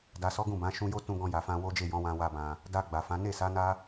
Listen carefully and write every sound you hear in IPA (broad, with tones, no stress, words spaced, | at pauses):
da˨sɔ˨˦ ɡũ˦˨bã˨˦ ʃũ˧jo˦tũ˧ ɡɔ̃˧ja˨fã˧ wo˦d͡ʒe˦˨jɔ̃˨˦wã˧ wa˧bã˨ | da˧ ɡ͡ba˨fã˨˦ ne˦˨sa˨˦ na˦